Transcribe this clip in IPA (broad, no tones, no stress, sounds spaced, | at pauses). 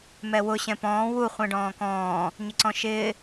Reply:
m ɛ w ʊ ɕ ɛ̃ p ɔ̃ː w u χʷ ɛ̃ ɖ ɔ̃ː k ɔ̃ː | ɲ ɪ ǀ ɔ̃ ʃ ɪː